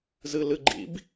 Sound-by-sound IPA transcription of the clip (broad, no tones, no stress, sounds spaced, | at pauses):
z ɨ l ɨ ɡ͡ǃ ḭ b